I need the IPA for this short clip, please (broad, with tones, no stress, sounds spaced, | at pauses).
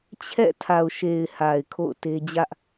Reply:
t͡ɕʰ ɛ̰˦˨ tʰ a˨ ʊ̯ ʃ e˨ ɪ̯ h a˨ ɪ̯ kʰ o̰˦˨ ʊ̯ t e˦ d͡ʑ ä˦ ʔ